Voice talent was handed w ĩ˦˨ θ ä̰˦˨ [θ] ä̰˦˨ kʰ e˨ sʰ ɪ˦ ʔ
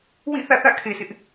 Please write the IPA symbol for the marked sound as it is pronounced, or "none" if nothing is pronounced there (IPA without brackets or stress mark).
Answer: θ